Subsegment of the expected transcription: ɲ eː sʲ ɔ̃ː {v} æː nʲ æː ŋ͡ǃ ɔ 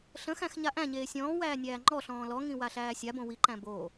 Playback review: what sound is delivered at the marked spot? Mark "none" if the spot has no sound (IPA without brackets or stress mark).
w